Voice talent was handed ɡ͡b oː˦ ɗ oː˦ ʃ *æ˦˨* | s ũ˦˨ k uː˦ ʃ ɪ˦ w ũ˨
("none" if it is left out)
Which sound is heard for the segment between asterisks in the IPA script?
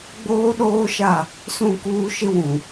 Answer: a˦˨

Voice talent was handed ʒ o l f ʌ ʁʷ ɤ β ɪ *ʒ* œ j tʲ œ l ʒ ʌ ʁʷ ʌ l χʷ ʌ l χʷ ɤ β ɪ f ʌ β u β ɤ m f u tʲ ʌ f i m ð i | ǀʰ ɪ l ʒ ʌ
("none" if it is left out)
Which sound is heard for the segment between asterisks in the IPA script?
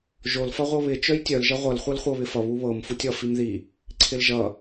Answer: t͡ʃ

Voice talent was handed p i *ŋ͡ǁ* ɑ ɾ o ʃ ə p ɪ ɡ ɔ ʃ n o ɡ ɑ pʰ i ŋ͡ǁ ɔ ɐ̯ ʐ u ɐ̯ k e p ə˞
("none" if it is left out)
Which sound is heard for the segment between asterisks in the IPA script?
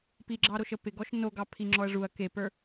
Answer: ɡ͡ǁ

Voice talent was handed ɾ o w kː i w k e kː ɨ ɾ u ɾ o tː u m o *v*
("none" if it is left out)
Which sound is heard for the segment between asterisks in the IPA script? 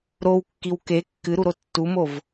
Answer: v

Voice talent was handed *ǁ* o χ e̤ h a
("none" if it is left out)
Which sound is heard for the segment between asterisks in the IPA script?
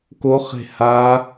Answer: k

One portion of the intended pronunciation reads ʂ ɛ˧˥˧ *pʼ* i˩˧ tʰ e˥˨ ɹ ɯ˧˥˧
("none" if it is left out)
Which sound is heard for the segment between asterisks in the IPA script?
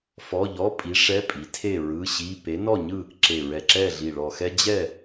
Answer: pʼ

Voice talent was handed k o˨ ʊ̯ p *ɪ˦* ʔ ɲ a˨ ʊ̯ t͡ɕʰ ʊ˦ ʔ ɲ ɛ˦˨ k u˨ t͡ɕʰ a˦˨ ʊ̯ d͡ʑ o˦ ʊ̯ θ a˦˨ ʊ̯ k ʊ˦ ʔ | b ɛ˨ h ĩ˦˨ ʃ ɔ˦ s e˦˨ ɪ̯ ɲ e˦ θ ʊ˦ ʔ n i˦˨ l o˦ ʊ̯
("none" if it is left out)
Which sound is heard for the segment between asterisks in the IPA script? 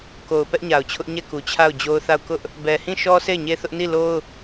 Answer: ɛ˦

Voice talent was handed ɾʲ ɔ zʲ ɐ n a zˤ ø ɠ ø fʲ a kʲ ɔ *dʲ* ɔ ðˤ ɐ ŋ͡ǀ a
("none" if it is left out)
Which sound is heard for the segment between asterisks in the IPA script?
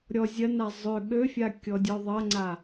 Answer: dʲ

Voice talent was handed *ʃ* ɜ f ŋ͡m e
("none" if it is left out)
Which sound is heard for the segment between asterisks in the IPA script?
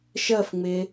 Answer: ʃ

